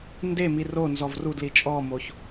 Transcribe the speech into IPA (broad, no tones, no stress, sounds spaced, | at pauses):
n d e m i r o n z ɔ v r u d l i t͡ʃʼ ɔ m o ç